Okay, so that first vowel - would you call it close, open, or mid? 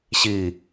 close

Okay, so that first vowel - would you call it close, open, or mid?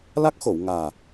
open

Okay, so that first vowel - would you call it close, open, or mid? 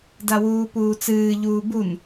open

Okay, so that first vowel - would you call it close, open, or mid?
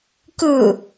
close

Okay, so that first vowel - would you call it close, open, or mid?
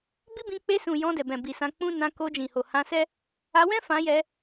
close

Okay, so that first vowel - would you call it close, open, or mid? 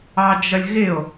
open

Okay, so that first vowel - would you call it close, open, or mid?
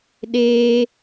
mid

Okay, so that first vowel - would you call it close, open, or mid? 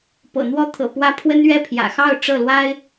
mid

